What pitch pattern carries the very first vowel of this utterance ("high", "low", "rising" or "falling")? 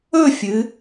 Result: falling